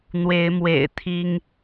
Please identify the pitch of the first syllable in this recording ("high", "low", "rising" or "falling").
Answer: rising